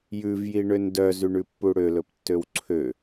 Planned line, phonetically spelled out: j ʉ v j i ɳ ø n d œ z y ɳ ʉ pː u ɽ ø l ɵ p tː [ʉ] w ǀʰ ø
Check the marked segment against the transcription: incorrect: ø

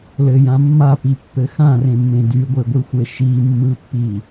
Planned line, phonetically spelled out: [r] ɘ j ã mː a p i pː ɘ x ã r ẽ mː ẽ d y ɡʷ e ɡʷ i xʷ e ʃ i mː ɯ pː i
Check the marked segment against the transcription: incorrect: l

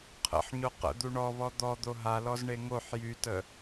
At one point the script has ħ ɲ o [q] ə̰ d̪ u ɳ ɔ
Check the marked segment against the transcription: correct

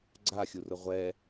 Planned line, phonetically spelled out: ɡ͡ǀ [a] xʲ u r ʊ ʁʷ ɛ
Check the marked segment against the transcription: correct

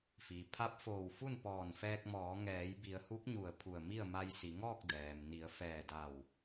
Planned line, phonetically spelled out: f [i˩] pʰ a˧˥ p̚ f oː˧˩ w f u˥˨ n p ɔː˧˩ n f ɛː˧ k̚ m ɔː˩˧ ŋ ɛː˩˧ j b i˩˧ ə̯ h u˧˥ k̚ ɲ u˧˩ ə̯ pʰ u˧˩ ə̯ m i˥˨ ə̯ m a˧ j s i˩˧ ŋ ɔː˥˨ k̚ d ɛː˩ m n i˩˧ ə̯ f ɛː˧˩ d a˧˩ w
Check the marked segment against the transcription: correct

